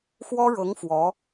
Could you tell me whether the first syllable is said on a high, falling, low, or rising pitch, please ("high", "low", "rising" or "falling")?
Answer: high